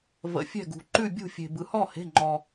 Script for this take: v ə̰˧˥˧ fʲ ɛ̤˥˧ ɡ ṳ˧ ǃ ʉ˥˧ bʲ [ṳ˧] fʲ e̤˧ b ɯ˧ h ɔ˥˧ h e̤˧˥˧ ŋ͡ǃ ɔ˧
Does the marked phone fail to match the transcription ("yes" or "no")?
yes